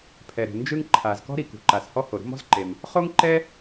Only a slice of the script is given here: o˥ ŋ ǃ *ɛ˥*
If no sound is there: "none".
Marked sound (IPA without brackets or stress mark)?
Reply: ɛ˥